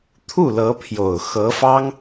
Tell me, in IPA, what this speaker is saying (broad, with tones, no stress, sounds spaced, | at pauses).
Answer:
t̪ʰ u˥˩ l ɤ˧˥ pʰ j o˨˩ ʊ̯ x ɤ˧˥ f ɑ˥ ŋ